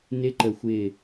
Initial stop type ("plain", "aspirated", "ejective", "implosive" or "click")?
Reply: click